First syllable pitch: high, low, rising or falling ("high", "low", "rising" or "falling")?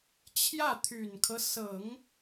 falling